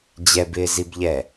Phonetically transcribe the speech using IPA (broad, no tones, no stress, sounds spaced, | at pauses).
d͡ʑ ɛ b ɪː z i b ʎ ɛ